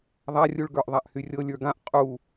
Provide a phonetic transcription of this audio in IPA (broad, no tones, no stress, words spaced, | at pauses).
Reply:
ðˤarʲuɭ ɡə˞ʔðˤaʔhyrʲɤ lʲə˞ɡãʔ qʼu